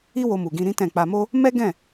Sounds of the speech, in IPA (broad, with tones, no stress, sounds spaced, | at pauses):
i˦ w o˧ m u˨ ɡ ĩ˧ ɾ ĩ˦ t ɛ̃˦˨ k͡p a˧ m o˦ | m ɛ˦ ɡ ɛ̃˦˨